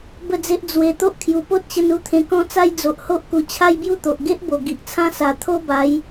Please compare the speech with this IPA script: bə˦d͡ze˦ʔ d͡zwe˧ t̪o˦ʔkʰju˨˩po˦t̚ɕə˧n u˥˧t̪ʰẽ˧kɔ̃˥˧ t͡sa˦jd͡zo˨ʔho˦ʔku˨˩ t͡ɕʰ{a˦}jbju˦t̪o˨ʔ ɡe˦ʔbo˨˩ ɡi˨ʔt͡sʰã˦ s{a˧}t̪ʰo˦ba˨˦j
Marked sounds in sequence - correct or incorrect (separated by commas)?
correct, incorrect